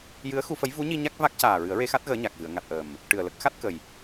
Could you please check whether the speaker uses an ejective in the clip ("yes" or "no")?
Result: no